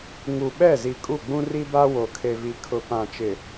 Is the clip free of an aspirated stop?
no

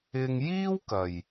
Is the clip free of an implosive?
yes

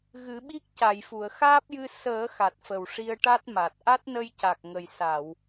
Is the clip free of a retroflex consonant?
no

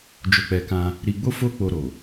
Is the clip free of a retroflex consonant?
yes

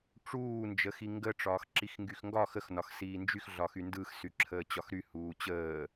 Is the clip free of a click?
no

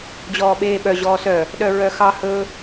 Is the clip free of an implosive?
no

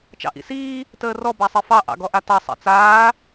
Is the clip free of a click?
yes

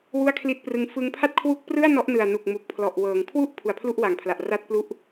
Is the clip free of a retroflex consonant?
yes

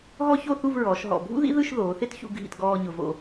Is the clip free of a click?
yes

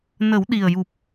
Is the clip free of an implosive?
no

